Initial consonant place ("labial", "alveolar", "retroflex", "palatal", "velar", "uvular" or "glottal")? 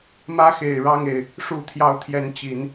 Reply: labial